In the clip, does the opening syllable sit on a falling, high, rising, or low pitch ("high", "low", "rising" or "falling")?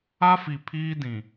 high